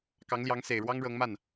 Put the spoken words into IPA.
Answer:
k ɑ˧˥ ŋ l j ɑ˧˥ ŋ s e˨˩ ɪ̯ ɻ w ɑ˥ ŋ ɻ ɤ˧˥ ŋ m a˥˩ n

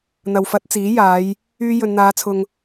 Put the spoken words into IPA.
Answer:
n̪ ɐ˨ w f ɐ˨˥ t̚ t͡s iː˨˥ j aː˨˧ j | yː˧ j ɵ˨ n n̪ aː˨˧ t͡sʰ ʊ˨ ŋ

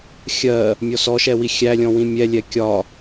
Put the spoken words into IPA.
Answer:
xʲ ɜ | mʲ ɔ s ɔ ʃ ɛ w i xʲ æ lʲ ɔ̃ w ĩ mʲ ɛ lʲ ɛ kʲ ɒ

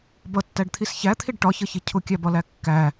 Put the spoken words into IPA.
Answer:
b ʌ tː æ ɖ t̪ʰ i s ç æ t̪ʰ i ɖ ʈ ɒ ç ʌ ç i cʰ ʊ kʲ æ b ɒ l æ kː æ

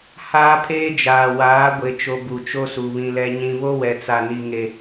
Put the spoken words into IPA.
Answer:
h aː˦ pʰ eː˦ d͡ʒ aː˨ w aː˨˦ ɡʷ e˨ t͡ʃ o˨ b u˨ t͡ʃ o˦ s u˨ β ĩ˨ l ɛ˨ ɲ ĩ˨ β o˦ w ɛ˨ t͡s a˨ n i˨ ŋ e˨

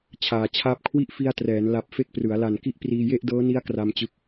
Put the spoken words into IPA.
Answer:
t͡ɕʰ aː˨˩ t͡ɕʰ aː˥˩ p̚ kʰ w i˥˩ ʔ f i˧ a̯ t r ɛː˩˦ n l a˨˩ p̚ f e˥˩ k̚ p r ɯ˩˦ a̯ l a˨˩ n k i˥˩ ʔ p r iː˧ j e˥˩ ʔ d ɤː˦˥ n i˦˥ a̯ k r a˧ m t͡ɕ ɯ˦˥ k̚

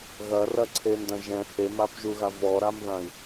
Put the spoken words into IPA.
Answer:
ɣ ɐ r ɐ ǀʰ e n d ɐ̃ ʒ ɛ̃ h e m a p ʒ u ɣ a v ɔ ɾ a m ð ã i̯

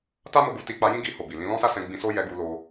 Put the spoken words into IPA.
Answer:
t a˦ m o˧ ɡ u˧ t i˧ k͡p a˧ j ĩ˦ ɡ i˧ h o˨ b i˨ l ĩ˧ l ɔ̃˦ s a˦ s ɛ̃˧ ɡ͡b ĩ˧ s o˦ j ɛ˧ ɡ u˧ l o˧

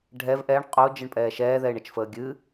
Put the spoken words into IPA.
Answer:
ɖʱ ɛ v ʔ ɛ ɳ qʼ o d͡ʒ ɨ ɳ pʼ ɛː ʃ ɛː ð ɛ ɪ̯ ɳ ə t͡ʃ f əː ɡʲ ɨ

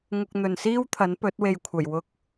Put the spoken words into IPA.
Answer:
ŋ ʊ˧ k̚ n̪ ɵ˨ n s iː˥ w t̪ʰ ɐ˨˥ n p ɵ˨˥ t̚ w e˨ j kʷʰ ɐ˨˩ j w ʊ˧ k̚

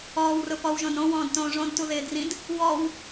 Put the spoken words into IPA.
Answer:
ɔː w r ʊ p ɔ w ʒ õ d ɾ õ w ɔ̃ː d t õː ʐ õ d t u ð ɪː d r ĩ d | w ɔ w

